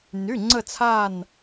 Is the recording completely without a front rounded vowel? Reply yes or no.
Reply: no